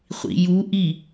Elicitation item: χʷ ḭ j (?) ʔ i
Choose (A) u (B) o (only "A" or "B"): A